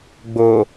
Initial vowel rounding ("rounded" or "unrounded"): rounded